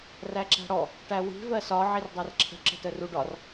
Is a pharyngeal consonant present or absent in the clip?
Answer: present